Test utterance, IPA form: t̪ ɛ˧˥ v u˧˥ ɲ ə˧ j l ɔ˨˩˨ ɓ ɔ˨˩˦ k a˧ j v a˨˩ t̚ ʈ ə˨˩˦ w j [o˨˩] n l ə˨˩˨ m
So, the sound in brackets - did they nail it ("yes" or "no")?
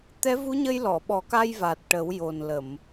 yes